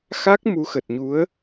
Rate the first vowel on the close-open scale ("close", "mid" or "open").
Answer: open